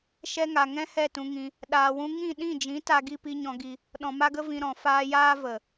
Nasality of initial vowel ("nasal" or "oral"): oral